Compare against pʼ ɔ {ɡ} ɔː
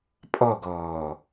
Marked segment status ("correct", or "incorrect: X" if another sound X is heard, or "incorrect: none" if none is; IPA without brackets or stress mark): correct